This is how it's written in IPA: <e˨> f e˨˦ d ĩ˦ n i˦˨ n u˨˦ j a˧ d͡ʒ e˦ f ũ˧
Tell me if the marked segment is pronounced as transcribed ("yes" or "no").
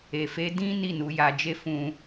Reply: yes